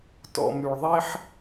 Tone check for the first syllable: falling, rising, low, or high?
low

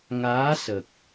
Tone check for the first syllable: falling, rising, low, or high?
rising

